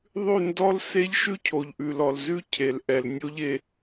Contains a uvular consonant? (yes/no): no